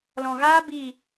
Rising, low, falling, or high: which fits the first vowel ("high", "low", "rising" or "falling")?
low